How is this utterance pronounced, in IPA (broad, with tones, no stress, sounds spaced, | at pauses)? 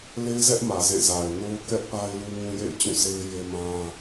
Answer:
l e˦ ɪ̯ z ɛ˦ ʔ m ä˨ z ḛ˦˨ z a˨ ɪ̯ n o˦ ʊ̯ k ɛ˦ ʔ p a˦ ɪ̯ l u˦ ŋ ũ˦ j ḛ˦˨ ɪ̯ t͡ɕ ũ˦˨ sʰ e˦ ɪ̯ j e˦ m ã˦